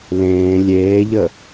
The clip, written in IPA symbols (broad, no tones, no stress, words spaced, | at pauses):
lẽː lʲeːʎə